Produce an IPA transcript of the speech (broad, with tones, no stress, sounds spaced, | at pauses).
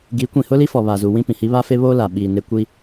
ɡ i˨˦ kʷ ĩ˨ h ʊ˦ l i˦ f ɔ˨ β a˨ z u˨ w ĩ˦ p ĩ˨ h i˦ β a˦ f e˦ β oː˦ l a˨ ɓ i˨ n e˦ kʷ i˦